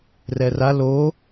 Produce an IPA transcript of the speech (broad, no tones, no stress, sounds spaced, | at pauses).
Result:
r ɛ r a l o